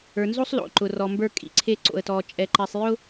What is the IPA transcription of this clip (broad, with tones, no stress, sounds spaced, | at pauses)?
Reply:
ə˞˨ n z o˦ sˤ l o̰˨ ǃ ʊ˨ r ɔ˨ m b ə˞˦ kʼ ḭ˨ ǀʰ e˦ ǀ o̰˨ ə̯ t ɔ˨ t͡ʃʼ ɛ˨ ǃ ɛ˨ sˤ j ʊ˦